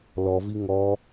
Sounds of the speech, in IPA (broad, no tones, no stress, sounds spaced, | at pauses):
l ɔ v i ŋ ɔ